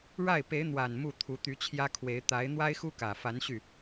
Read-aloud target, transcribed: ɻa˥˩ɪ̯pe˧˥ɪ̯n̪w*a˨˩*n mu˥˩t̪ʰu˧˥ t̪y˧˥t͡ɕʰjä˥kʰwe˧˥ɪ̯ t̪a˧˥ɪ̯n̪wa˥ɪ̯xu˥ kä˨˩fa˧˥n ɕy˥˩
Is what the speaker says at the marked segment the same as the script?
yes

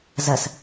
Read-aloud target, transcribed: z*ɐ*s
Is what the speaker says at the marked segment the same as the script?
yes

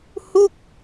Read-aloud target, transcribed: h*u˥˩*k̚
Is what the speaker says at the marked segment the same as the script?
yes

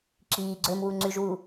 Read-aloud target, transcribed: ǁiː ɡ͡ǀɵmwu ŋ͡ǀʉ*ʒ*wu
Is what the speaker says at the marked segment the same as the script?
yes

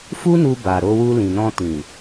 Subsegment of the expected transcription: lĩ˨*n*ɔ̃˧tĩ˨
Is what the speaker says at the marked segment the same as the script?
yes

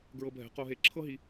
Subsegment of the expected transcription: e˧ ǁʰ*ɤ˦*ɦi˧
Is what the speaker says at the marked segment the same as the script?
yes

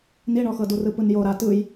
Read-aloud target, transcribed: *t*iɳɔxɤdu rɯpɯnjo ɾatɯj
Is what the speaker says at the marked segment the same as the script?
no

